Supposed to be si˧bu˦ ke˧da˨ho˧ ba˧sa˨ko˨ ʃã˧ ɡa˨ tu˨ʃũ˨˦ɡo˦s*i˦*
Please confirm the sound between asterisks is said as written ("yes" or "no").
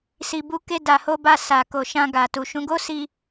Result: no